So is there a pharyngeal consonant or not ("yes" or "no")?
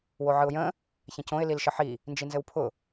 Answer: yes